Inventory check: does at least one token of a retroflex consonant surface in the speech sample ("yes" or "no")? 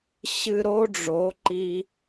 yes